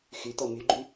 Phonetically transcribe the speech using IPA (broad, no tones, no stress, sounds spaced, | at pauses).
x y t̪ ɔ m y ɡ͡ǃ y